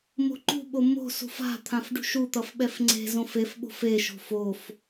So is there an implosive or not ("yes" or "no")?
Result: yes